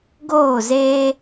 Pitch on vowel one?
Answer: falling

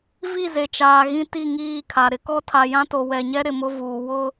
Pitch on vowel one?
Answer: falling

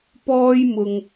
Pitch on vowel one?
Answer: high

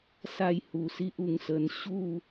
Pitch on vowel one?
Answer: falling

